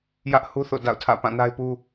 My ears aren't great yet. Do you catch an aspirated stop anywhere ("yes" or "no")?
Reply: yes